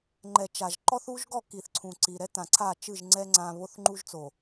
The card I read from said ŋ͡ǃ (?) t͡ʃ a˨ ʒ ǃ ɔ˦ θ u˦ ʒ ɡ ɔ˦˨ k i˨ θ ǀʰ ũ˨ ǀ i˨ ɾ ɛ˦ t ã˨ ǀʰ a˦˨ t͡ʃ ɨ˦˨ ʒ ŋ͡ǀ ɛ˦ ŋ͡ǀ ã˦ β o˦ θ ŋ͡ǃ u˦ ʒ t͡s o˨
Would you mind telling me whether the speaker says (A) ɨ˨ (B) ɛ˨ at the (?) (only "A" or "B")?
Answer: B